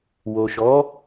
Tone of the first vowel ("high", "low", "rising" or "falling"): low